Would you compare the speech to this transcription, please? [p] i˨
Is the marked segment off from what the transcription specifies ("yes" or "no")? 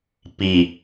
no